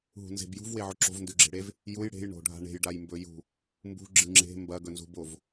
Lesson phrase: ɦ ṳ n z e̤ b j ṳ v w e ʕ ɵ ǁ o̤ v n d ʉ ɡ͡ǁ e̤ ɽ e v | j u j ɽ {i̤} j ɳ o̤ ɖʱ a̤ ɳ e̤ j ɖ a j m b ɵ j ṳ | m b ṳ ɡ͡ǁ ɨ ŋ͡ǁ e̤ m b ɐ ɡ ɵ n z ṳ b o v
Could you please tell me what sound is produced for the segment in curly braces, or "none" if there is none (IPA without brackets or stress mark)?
e̤